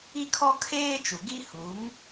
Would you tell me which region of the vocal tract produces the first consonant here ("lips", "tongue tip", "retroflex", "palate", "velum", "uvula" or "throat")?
velum